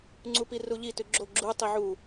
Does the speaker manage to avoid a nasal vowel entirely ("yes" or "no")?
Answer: yes